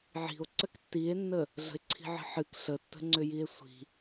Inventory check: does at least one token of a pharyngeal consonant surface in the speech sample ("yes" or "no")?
yes